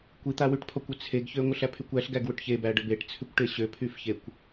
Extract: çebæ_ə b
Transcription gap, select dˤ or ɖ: ɖ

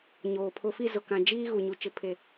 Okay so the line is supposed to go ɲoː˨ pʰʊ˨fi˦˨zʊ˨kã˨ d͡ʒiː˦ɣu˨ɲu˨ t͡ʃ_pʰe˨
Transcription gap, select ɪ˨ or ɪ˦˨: ɪ˨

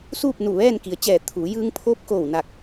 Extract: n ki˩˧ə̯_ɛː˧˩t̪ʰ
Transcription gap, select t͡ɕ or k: t͡ɕ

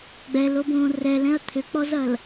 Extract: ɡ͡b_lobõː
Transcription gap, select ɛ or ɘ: ɛ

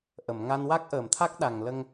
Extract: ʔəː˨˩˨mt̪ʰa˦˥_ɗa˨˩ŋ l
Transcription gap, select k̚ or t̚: k̚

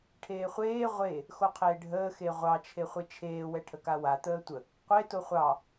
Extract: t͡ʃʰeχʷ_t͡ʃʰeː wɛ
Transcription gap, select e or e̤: e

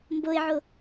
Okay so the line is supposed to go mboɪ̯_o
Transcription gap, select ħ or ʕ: ʕ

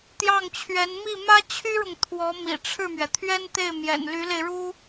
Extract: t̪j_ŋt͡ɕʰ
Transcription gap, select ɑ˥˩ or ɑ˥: ɑ˥˩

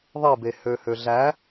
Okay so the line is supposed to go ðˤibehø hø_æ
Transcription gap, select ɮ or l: ɮ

